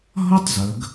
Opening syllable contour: high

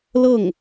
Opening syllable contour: falling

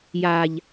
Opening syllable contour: low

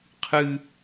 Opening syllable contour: high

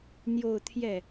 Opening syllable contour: falling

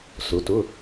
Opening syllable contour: rising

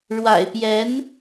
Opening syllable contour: low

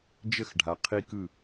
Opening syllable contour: falling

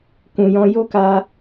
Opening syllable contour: low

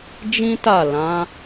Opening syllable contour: high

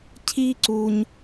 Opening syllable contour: high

